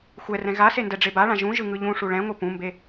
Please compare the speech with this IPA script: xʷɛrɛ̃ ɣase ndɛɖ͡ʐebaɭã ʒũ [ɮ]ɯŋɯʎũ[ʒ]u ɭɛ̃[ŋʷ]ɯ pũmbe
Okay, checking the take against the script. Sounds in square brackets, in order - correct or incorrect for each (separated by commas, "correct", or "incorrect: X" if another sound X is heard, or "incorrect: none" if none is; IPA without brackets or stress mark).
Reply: incorrect: ʒ, incorrect: ʂ, correct